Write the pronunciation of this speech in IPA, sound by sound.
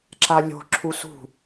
ǁ a lʲ o̤ ǁʰ u s ṳ

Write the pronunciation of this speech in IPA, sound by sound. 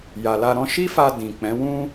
j a˨ l a˧ ɾ ɔ̃˦ ʃ i˦ f a˧ d ĩ˨ k͡p ɛ̃˨˦ w ũ˦

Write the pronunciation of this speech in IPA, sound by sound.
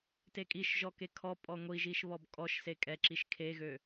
t e kʼ i ʃ ʒ ɔ k e kʰ ɔ pʼ ɔ ŋʷ i ʒ i ʃ β ɔ b kʼ ɔ ʃ s e kʼ ɛ ǁ i ʃ kʰ e ɣ ø

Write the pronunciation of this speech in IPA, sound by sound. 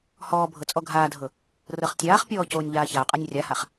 h ɔː bʱ ɤ t͡sʼ ɔ ɡʱ aː dʱ ɤ | r ɤ χ tʲ aː χ pʲ ɔː c oː nʲ ʎ aː ç a ʊ̯ qʼ a nʲ rʲ a h a χ

